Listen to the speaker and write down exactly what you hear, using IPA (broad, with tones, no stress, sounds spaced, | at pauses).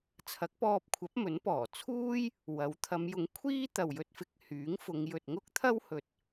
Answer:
t͡sʰ ɐ˨˥ k̚ p ɔː˧ p̚ kʷʰ ɐ˨˥ p̚ m ɵ˨˥ n p ɔː˨˩ t͡sʰ uː˥ j | w ɐ˨˥ w t̪ʰ ɐ˨˧ m j ʊ˨˥ ŋ kʷʰ iː˥ t̪ ɐ˨ w j ɵ˧ t̚ f ɪ˧ k̚ h yː˨˥ ŋ f ʊ˨˧ ŋ j ɵ˨ t̚ ŋ ʊ˥ k̚ t̪ʰ ɐ˥ w h ɵ˨ t̚